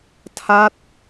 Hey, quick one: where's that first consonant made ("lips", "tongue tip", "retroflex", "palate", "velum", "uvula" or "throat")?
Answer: tongue tip